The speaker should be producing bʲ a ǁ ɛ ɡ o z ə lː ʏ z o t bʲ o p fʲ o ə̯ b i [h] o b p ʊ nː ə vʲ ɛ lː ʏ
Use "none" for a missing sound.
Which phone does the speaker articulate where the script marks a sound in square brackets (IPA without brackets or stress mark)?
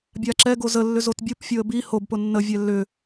h